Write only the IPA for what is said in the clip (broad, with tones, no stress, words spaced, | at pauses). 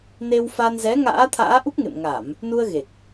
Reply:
ne˧wfa˧n zɛ˨˦ŋa̰ː˧˥ t̪ʰa̰ː˧˥ʔu˦˥k̚ŋḛ˧˨m ŋa˧˩˨m | nu˧ə̯ɣe˨˩k̚